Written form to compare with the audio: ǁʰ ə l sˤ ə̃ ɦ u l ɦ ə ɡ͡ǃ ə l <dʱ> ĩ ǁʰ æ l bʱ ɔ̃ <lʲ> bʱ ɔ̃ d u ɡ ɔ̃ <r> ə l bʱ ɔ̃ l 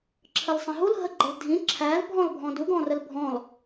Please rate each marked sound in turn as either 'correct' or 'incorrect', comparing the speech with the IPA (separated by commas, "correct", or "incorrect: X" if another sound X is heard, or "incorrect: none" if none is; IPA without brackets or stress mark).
correct, incorrect: l, correct